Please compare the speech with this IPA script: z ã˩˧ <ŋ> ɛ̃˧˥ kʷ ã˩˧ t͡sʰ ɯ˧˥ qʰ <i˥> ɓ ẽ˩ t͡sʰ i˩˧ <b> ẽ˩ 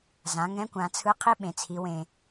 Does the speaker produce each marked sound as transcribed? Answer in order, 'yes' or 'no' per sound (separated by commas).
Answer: yes, yes, no